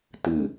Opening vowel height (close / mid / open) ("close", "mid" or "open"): close